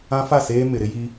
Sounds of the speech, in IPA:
ã˦ f a˦˨ s eː˦ m ɪ˨ ɾ ɪ˦ j i˦

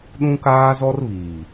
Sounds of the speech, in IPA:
ɗ ũ˦ k aː˦ z ɔ˦ r β iː˨

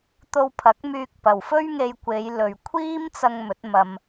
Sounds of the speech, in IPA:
t̪ o˧ w pʰ ɐ˨˥ k̚ m yː˧ k̚ p ɐ˨ w f ɵ˥ ɥ ŋ e˧ j kʷ e˨˧ j l ɵ˨ ɥ kʷʰ iː˥ m t͡s ɐ˧ ŋ m ɵ˨˥ t̚ m ɐ˧ m

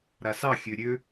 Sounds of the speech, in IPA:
ɾ a s ɑ xʲ ø ɾʲ ø

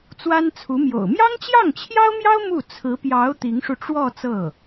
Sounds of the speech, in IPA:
t͡s w a˥ n t͡sʰ u˧˥ m j o̰˨˩ ʊ̯ m j ɑ˥ ŋ t͡ɕ j ɑ˥˩ ŋ t͡ɕʰ j ɑ˥ ʊ̯ m j ɑ˥ ʊ̯ m u˥˩ t͡sʰ ɹ̩˧˥ p j ɑ˧˥ ʊ̯ t̪ i˧˥ ŋ ʂ u˧ ʈ͡ʂ w ɔ˥˧ t͡s ɤ˥˩

